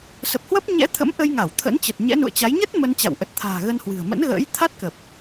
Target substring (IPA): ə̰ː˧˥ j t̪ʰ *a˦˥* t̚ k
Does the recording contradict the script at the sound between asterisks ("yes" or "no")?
no